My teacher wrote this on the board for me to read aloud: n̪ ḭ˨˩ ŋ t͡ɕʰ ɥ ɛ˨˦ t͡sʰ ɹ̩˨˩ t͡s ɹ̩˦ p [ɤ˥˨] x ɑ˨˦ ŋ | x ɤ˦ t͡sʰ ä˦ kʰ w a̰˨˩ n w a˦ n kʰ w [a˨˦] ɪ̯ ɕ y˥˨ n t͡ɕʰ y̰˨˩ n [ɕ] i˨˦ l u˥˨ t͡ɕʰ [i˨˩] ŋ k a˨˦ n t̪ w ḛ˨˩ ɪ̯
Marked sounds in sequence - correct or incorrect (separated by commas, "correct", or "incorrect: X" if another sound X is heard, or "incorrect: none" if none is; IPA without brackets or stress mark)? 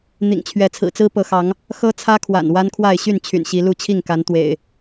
incorrect: ɤ˨˦, incorrect: a˥˨, correct, incorrect: i˥˨